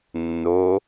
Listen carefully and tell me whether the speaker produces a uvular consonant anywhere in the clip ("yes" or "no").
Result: no